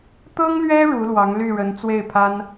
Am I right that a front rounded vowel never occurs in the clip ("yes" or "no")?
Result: no